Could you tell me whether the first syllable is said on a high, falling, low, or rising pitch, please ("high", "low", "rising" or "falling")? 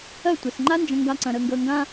falling